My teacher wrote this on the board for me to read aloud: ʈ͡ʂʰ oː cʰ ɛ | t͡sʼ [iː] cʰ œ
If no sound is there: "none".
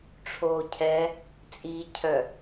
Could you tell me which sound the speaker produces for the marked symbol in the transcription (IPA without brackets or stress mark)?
iː